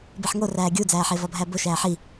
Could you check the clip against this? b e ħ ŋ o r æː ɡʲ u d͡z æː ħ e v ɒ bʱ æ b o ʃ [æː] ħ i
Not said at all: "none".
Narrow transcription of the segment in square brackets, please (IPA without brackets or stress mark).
æː